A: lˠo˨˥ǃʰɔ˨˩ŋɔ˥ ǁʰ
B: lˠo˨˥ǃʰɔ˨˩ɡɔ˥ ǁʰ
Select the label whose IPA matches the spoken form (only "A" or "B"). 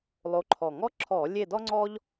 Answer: A